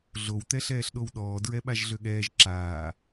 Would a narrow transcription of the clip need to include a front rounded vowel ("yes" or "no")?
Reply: yes